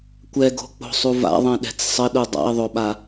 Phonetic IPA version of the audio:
kʷ ɛ ɡ o̤ k͡p o̤ sˤ u v a̰ ðˤ ɛ̃ ɗ ɛ̤ t͡s sˤ ə ɗ u dˤ a̰ e̯ ðˤ o ɓ a

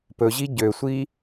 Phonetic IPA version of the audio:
p ɵ ʑ i ɟ ø sʷ i

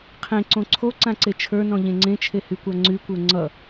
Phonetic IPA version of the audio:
qʰ ẽ ǀ õ ǀʰ o ǀ ã ǀ e t͡ʃʰ ə˞ n ɔ̃ ʎ ẽ ŋ͡ǀ ẽ t͡ʃʰ e h y kʷ a ŋ͡ǀ y kʷ ə˞ ŋ͡ǀ ʌ

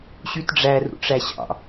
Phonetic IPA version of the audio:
ɕ y t ɖ͡ʐ æ r ṵ ʈ͡ʂ æ ɕ ɑ̰

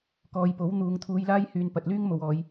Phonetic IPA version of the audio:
k ɔː˨˧ j p o˨˥ w n̪ uː˨˧ ŋ t̪ʰ uː˧ j l aː˥ j h yː˨ n p ɐ˨ t̚ l yː˥ ŋ m o˨ w ɔː˨˧ j

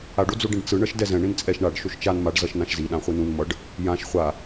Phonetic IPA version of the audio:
a ɖ o d͡z o ɖ ĩ ɖ t͡s ɯ ɳ ʌ ʃ d ɛ z ɛ̃ ɳ ĩ n t͡sʼ ɛ ʃ ɳ a ɖ ʃ o ʃ t͡ʃ a n m a ɖ z ʌ ʃ n ã ʃ z i ɗ ã χʷ i n ũ n m ʌ ɖ | j ã ʃ χʷ a

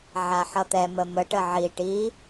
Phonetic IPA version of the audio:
ʕ a ħ ʌ t̪ ɛ m ə m ə ʈ ə ʕ i ʈ i

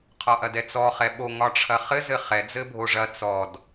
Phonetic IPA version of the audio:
qʰ ɒ ʔ ɐ d ɛ t͡s ɔ χ ɛ ɓ o ŋ ɒ ʈ͡ʂʰ ɐ χ ɘ z ɘ χ ɛ d͡z ɘ bʱ o ʐ ɐ t͡s ɔ d

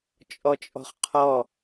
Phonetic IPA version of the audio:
t͡ʃʼ ɔ t͡ʃʼ ɔ̤ χ qʰ ɔ

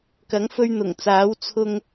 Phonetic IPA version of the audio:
k ɐ˨˥ ŋ f ɵ˧ ɥ n̪ ʊ˨˩ ŋ t͡s aː˨˥ w t͡sʰ ʊ˧ ŋ

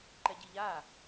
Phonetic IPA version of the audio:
ǃ ɛ ɟ i ʎ a

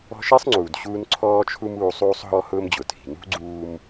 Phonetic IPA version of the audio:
ɔ̤˦ ʃ i˥ sˤ ŋ͡ǀ uː˨ d ɕ uː˦ n ǀʰ ɔː˥ t͡ʃʰ u˥ m uː˦ sˤ uː˥ sˤ ɦ ɔ˥ h ʊː˥ m d͡ʑ ʊ˨ tʰ i̤˨ n ṳ˥ ɡ͡ǀ uː˦ m

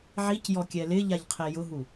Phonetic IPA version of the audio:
ʕ i c j ɔ kʲ ɛ l ɪ ʎ a ʎ qʰ e j ʊ ɦ u

